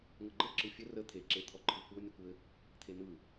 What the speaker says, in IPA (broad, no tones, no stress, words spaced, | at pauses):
ŋɤɡ͡ǃə ǁɯfʲə rə t̪ʰeǁet̪ʰɔǃʰɯ kʷɤnʲɘ kʷɘ | t̪ʰen̪ɯ